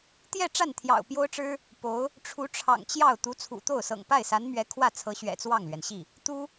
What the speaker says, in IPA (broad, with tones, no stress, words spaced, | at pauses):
t̪jɛ˥˧ ʈ͡ʂa˥˩nt̪ʰjɑ̰˨˩ʊ̯ pjo˥ʊ̯ʈ͡ʂɻ̩˥ | po˧˥ʊ̯ | ʈ͡ʂʰu˧˥ʈ͡ʂʰɑ̰˨˩ŋt͡ɕjɑ˥˩ʊ̯ t̪u˧˥t͡sʰṵ˨˩t̪o˥˩ʊ̯ sɤ̰˨˩ŋpa˥˩ɪ̯sa˧˥nmɥɛ˧˥ kʰwä˥˩t͡sʰɤ˧˥ɕɥɛ̰˨˩ t͡swɑ˥˩ŋlɥɛ˩nɕi˥˩ | t̪u˥